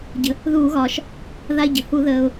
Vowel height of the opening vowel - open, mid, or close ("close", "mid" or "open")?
mid